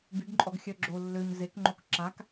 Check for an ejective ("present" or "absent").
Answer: present